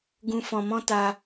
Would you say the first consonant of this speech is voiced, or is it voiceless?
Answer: voiced